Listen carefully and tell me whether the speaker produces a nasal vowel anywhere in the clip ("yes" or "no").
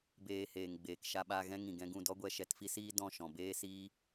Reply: yes